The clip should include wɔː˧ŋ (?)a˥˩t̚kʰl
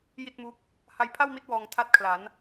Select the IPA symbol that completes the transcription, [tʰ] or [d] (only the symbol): tʰ